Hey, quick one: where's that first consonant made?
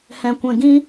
throat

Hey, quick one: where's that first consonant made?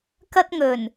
velum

